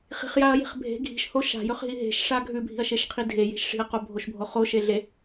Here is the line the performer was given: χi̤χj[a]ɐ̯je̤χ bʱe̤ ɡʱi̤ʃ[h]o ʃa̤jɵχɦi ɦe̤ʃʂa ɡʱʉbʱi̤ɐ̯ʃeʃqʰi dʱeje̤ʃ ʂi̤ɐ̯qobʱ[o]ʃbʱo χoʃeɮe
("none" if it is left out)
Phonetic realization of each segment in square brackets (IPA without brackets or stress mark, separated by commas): a, h, o